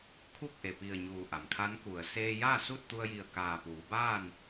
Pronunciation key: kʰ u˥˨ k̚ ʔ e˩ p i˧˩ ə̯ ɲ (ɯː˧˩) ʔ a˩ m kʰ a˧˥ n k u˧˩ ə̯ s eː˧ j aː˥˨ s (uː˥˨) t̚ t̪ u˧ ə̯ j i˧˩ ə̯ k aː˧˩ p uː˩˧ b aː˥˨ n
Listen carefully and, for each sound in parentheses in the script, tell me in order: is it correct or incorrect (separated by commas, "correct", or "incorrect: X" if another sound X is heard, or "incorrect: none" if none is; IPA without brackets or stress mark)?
incorrect: uː˧˩, incorrect: u˥˨